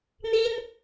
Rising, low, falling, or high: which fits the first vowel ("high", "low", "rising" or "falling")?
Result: high